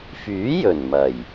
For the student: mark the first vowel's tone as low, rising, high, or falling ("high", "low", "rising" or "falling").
rising